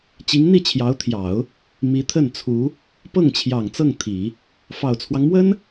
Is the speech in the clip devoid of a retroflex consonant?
yes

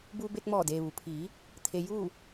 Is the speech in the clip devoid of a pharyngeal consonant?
yes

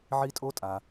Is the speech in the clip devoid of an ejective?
no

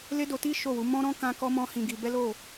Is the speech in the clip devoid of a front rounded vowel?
yes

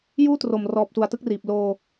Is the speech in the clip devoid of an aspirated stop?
yes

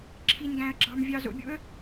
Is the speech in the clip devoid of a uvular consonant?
yes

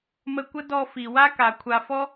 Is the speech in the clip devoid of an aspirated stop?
no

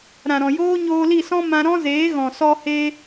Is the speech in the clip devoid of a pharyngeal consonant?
yes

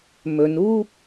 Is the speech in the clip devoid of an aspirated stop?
yes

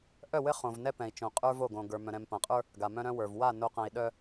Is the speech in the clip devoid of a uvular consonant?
no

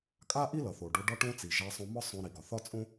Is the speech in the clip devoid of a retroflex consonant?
no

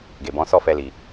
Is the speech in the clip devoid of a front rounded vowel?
yes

